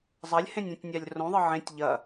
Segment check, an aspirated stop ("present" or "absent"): absent